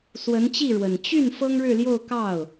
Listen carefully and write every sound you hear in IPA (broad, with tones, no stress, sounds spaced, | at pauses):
s w ə˧˥ n t͡ɕ i˥˩ ɻ w ə˨˩ n t͡ɕ y˥˩ n f ɤ˥ ŋ ɻ ɻ̩˥˧ l j o˥˧ ʊ̯ k ɑ˥˩ ʊ̯